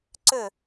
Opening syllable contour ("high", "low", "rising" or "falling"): falling